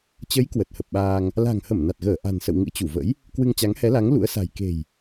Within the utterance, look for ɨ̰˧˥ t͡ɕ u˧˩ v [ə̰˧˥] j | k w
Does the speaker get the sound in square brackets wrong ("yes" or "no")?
no